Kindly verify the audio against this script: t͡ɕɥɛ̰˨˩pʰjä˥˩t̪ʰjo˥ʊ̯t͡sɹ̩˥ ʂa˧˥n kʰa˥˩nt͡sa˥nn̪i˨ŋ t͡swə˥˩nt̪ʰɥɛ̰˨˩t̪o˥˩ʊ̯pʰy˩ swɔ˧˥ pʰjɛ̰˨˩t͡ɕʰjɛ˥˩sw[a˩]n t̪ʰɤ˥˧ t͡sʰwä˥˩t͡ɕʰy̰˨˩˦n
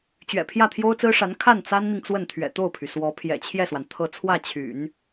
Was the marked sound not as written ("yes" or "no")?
no